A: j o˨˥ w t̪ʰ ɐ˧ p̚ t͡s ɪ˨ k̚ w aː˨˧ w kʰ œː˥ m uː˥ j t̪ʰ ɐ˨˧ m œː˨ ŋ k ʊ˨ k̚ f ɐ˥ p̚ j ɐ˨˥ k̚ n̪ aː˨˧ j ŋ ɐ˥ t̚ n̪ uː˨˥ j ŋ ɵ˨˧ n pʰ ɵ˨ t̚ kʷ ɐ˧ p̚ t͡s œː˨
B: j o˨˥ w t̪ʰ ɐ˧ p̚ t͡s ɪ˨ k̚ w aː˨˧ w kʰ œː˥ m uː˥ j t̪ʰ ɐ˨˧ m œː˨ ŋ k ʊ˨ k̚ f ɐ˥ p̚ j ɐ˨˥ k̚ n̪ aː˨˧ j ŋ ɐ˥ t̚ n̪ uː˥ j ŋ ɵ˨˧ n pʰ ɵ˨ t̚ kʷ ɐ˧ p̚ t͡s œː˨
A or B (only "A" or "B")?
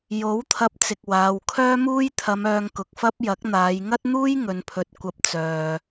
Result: B